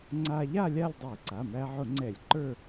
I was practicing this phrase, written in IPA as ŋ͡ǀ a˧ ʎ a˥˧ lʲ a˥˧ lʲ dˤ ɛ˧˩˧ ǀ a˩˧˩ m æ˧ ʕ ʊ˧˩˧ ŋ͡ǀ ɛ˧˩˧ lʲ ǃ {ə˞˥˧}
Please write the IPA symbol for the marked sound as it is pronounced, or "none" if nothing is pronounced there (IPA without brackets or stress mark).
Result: ə˞˥˧